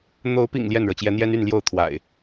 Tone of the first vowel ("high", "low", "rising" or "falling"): rising